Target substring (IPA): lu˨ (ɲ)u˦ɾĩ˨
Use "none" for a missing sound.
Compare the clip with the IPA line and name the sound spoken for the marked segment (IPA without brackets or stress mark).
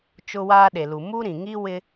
m